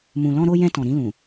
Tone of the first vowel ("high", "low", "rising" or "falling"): low